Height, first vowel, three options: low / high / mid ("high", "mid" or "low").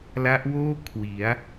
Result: low